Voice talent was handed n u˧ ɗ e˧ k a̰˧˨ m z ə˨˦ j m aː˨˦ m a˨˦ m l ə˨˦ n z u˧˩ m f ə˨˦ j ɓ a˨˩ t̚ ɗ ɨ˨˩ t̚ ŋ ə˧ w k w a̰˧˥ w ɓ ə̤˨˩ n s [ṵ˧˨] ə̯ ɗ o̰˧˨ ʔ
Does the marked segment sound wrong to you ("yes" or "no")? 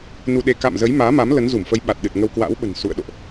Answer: no